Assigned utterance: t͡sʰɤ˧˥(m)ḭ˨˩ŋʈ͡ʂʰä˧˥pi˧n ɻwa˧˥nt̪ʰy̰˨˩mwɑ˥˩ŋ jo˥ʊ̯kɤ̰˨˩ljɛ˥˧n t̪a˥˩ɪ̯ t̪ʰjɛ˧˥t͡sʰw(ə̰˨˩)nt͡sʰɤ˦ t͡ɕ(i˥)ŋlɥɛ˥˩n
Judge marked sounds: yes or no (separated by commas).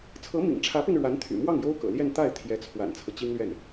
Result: yes, no, yes